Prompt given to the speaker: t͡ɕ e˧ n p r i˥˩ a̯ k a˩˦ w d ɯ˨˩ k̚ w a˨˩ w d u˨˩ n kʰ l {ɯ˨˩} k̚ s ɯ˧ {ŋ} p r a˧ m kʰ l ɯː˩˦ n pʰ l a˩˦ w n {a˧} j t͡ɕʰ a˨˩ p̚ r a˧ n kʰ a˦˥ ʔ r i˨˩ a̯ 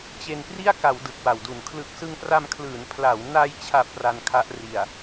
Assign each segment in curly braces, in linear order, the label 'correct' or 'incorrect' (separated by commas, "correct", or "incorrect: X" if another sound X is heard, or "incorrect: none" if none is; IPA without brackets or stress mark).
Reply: correct, correct, correct